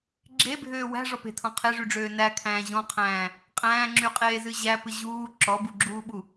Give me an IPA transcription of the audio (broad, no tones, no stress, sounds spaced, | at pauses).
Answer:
ɡ͡ǁ e bʱ øː w æ̤ ʐ ɔ p e̤ tʰ ɔ̃ qʰ e ʐ y ɖ͡ʐ øː n æ kʰ æ̃ː ʑ ɔ̃ qʰ æ̃ː | qʼ æ̃ː ŋ͡ǁ y qʼ eː z ɨ ʑ æ p ɨ ʑ uː ǁ ɔ b u ɡ͡ǁ uː ɓ u